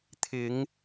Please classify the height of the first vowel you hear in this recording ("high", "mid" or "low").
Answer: high